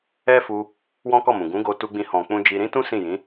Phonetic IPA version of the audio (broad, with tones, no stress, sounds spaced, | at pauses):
ɛ˦ f u˧ | w ɔ̃˦ k ɔ˦˨ m ũ˨ ɡ ũ˨˦ ɡ o˧ t u˧ ɡ͡b ĩ˧ h ɔ̃˨ k͡p ũ˧ d͡ʒ i˧ ɾ ĩ˦ t ũ˦ s ĩ˦˨ j ĩ˨˦